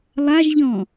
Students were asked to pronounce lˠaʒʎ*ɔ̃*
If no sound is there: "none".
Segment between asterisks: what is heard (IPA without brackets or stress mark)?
ɔ̃